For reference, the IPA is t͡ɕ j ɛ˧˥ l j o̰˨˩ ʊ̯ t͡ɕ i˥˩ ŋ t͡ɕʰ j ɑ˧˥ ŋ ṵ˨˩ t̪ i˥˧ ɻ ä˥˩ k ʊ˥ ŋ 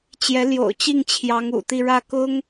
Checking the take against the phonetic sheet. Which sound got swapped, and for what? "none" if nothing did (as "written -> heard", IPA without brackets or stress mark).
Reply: none